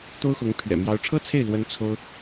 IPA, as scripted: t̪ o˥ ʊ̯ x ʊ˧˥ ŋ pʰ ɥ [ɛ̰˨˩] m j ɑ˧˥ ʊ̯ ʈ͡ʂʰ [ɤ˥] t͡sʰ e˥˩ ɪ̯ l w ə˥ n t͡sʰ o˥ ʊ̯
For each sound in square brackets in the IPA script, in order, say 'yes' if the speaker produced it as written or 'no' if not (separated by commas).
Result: yes, yes